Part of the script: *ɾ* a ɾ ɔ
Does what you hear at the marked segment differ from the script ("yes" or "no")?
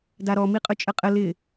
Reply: yes